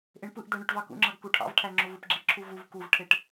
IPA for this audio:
ʔeɳpɯʔd̪æ ɳøʈvɑkṵŋ͡ǁɑɡ kuʈʰɑ̰vʈʰæ ŋ͡ǁovɯpɡ͡ǁiǁʰu vuv kuvʈʰeʈ

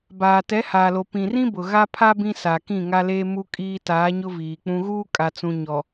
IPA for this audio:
baː˨ tɛ˨˦haː˨lo˨ pĩ˨rĩ˦ bʊ˨ɣa˦pʰa˦ bĩ˦sa˨kĩ˦˨ ŋa˦leː˦mu˦ kʼiː˦ taː˨˦ɲʊ˦ viː˨k͡pũ˦ ɣuː˦kʼa˨t͡sũ˨ ɲɔ˨

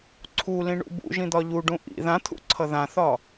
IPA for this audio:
ǀʰulĩɳṵ bṵʒĩd̪ɒ ʎuɖũ ʔḭ ðãt̪ʰṵǀʰʌ ðãθɒ

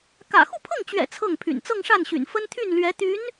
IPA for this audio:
kä̰˨˩ xu˥˧pʰɤ˥˩ŋt͡ɕɥɛ̰˨˩ t͡sʰɤ˥˩ŋpʰy̰˨˩n t͡sɤ˥˧ŋʂa˥˩nɕy̰˨˩n fə˥nt̪ʰy˥˩nlɥɛ˧˥ t̪y˧˥n

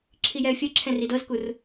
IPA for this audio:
ǁʰijɛə̯fʲɤ ǁʰɛ̃ridɤzkur

